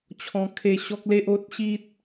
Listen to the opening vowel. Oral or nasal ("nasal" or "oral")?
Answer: nasal